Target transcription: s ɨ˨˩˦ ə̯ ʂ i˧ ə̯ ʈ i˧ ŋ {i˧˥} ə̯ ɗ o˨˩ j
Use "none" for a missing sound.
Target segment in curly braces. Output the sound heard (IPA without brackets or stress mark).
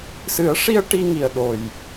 i˨˩